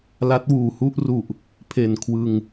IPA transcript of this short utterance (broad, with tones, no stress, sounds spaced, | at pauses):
l a˦˥ t̚ w uː˨˩ h u˥˩ ʔ r u˨˩ ʔ | pʰ e˨˩ n kʰ w ɯ˧ ŋ